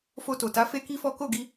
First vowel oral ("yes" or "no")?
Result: yes